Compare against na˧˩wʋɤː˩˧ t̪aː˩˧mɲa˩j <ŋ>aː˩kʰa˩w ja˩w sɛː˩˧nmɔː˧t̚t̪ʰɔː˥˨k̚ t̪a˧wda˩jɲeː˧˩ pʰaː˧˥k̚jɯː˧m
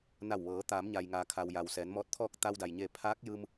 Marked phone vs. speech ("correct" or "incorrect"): correct